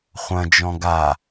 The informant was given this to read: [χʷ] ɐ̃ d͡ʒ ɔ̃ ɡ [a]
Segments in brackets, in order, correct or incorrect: correct, correct

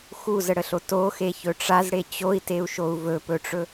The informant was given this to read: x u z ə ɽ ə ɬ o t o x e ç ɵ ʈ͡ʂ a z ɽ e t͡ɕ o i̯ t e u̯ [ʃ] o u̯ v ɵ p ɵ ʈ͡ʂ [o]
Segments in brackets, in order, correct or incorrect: correct, incorrect: ɵ

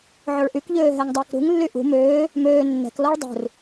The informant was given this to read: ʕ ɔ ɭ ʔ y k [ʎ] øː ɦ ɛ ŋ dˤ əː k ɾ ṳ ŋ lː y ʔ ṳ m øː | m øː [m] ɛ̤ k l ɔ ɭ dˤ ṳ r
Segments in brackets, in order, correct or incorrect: correct, incorrect: nː

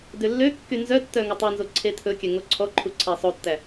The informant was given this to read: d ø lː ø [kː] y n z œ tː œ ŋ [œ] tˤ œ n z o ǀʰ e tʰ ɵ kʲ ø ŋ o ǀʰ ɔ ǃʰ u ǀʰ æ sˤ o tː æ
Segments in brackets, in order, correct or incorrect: correct, incorrect: ɵ

